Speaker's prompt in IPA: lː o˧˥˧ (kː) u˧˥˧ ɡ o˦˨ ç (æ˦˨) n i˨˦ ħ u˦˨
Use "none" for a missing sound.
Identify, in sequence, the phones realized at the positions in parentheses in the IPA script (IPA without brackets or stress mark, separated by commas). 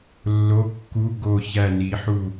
kː, æ˦˨